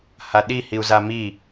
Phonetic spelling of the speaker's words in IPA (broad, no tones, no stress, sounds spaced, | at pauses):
h a ɗ i h i u̯ z a m i